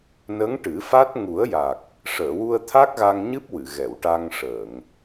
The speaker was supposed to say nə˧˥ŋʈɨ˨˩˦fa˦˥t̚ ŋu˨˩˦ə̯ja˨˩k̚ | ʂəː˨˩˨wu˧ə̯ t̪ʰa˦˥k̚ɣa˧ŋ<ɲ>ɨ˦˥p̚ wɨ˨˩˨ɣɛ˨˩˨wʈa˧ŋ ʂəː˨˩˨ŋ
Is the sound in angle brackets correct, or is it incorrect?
correct